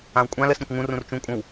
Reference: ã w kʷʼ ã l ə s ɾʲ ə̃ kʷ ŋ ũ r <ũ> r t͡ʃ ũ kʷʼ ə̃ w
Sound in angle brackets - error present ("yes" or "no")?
no